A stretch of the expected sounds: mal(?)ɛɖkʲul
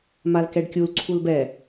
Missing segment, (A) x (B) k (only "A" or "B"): B